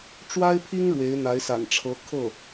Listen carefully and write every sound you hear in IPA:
ʈ͡ʂwa˥ɪ̯pʰi˥ŋ ɻwe˧˥ɪ̯n̪a˧˥ɪ̯sa̰˨˩nʈ͡ʂʰɤ˧˥ kʰɤ˥˩

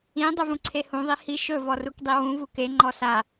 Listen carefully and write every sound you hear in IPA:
ĩ dˤuvũǀʰehũ ðˤihi ʃɵ vɔrukdˤiwũ vuke ŋ͡ǃɔsa

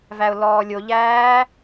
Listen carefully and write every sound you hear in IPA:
væʊ̯lɔːlʲoʎæː

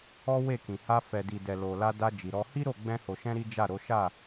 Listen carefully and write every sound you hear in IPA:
ɔ˦we˦˨kĩ˨ ha˧fɛ˨ di˨dɛ˨lo˨la˧ da˧ d͡ʒi˨ɾɔ˧ hi˦ɾo˦˨ ɡ͡bɛ̃˧ho˨ʃɛ̃˧ ɾi˦d͡ʒa˦˨ɾo˨˦ ʃa˦˨

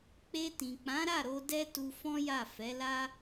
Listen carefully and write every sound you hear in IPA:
k͡pe˧ tĩ˨k͡pã˨˦ɾa˦˨ ɾo˧dɛ˦ tu˧fɔ̃˦ja˦˨ fɛ˨˦la˦

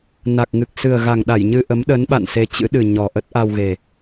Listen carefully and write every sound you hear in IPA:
na˨˩k̚ŋɨ˨˩k̚ sɨ˨˩ə̯ɣa˨˩ŋɗa˧˩j ɲɨ˧ʔə˨˦mɗə˨˦n ɓa̰˧˨nse˧t͡ɕɨ̰˧˥ ɗɨ˨˩ ɲɔ˨˩ʔə˦˥t̚ ʔa˧wɣe˨˩

